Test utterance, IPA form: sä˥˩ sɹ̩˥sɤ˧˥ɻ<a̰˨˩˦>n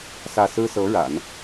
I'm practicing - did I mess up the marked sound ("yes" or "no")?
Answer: no